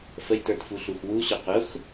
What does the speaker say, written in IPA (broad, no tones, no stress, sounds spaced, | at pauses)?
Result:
f ə j t ə˞ t f u ɬ u x w u ɕ ʊ q ʊ x